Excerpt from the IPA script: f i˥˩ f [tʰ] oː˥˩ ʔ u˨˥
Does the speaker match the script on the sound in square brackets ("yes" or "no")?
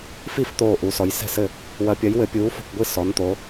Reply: no